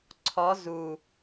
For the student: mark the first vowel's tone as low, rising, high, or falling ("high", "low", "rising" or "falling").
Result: rising